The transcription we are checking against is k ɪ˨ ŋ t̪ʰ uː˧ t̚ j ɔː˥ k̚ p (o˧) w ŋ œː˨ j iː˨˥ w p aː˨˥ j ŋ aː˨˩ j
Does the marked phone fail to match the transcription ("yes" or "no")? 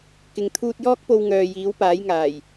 no